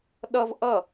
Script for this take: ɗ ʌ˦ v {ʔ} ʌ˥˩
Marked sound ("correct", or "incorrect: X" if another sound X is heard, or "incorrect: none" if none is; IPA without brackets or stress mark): correct